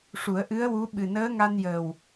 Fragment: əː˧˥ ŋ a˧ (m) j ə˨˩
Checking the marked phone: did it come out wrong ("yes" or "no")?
yes